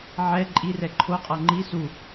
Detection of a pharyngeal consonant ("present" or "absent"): present